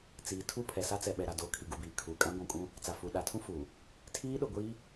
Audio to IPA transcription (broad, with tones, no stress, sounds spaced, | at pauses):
t͡s iː˨ tʰ u˦˨ pʰ ɛ˨ s a˦ t͡s ɛ˨ ɓ ɛ˨ ɾ a˨ d oː˨ kʰ i˨ ɡ u˨ b iː˨ kʰ uː˨ kʼ ã˦ ɡʷ ũ˨ kʼ ũ˦ | t͡s a˨ f u˨ ɗ a˨ tʰ ũ˦ f uː˨ | tʰ iː˦ ɗ ʊ˨ ɡʷ iː˦